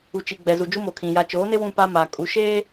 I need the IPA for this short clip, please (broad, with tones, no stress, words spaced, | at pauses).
u˨t͡ʃi˨ɡ͡bɛ˨ zu˨d͡ʒu˦mo˨kʰĩ˨ ja˨t͡ʃoː˨˦nɪ˦ wũ˦pa˦ ma˨ kʼu˦ ʃe˦